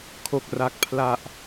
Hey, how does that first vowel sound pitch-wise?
low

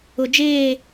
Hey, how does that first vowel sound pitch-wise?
low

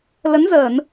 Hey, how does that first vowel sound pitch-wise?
rising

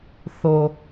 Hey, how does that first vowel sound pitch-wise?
low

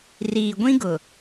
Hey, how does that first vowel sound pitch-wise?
low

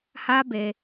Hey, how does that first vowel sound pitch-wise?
high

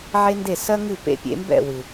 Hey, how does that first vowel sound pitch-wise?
high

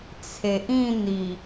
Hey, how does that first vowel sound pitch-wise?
low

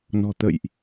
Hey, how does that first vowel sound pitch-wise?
low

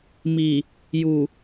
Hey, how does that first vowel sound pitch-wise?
low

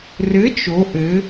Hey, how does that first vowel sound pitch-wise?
rising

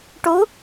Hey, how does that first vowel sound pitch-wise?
rising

